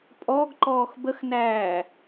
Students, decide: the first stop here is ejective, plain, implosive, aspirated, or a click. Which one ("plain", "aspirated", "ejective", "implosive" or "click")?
ejective